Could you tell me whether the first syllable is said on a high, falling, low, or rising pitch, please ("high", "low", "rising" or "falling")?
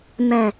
low